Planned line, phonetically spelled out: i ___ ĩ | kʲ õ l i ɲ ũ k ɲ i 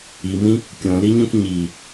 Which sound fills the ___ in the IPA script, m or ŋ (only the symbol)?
m